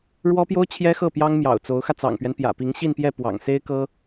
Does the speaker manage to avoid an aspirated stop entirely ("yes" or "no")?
no